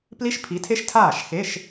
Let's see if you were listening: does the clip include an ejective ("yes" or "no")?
no